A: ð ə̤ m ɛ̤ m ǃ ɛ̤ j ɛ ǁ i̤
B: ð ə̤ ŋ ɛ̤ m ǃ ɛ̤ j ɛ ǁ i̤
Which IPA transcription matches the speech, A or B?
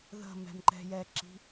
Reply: A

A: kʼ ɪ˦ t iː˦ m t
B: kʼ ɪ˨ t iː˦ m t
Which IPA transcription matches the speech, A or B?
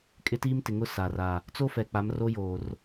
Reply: A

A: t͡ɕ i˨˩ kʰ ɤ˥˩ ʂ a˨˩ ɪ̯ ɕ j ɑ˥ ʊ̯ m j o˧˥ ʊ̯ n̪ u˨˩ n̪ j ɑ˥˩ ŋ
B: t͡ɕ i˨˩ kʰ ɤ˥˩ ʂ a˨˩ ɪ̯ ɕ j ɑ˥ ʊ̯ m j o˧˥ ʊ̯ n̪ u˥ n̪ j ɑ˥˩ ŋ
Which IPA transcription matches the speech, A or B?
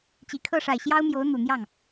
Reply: A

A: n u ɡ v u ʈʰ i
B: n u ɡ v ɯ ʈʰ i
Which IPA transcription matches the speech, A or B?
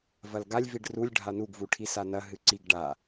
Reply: A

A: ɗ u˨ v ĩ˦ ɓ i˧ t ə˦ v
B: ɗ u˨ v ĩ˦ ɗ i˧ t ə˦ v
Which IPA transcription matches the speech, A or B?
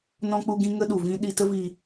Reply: B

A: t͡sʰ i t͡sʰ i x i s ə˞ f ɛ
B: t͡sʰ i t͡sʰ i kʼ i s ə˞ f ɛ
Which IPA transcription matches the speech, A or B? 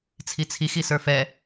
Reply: A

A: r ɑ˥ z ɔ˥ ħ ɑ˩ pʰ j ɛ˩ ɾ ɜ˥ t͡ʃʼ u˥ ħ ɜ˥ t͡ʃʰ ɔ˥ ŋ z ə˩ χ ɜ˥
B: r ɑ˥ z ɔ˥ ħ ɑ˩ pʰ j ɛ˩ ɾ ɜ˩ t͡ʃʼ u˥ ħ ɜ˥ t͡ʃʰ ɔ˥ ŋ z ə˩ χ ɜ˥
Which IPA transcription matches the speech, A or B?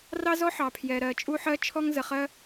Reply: B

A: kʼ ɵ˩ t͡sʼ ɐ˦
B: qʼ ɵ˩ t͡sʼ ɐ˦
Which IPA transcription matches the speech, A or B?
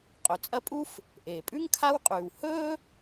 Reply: B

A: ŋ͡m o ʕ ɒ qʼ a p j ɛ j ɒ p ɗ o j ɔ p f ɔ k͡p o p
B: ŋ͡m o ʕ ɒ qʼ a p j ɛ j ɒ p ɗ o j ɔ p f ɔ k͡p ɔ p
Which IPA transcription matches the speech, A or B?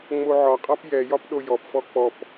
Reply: B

